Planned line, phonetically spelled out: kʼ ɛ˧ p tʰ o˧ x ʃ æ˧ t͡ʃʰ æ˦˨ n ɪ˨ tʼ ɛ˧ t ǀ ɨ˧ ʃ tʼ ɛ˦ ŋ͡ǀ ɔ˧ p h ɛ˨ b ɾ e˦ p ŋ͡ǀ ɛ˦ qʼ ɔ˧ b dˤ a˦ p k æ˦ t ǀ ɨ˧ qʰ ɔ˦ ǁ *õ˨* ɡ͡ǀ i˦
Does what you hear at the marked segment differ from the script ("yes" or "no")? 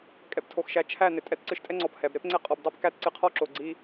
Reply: yes